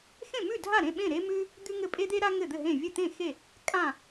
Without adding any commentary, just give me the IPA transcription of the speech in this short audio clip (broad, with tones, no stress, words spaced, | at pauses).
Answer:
xẽ˥˨mʉ˥˨dʱa˥˨ɾẽ˥˨ ɓẽ˥˨ɾe˥mʉ˥ | d̪ʉ˥ŋɘ˥˨ pʼe˥d̪e˥ ɾa˥ ŋɘ˥˨d̪ɘ˥˨ɦẽ˥˨ vʲɘ˥˨ t̪ẽ˥˨xe˥˨ | kʼã˥˨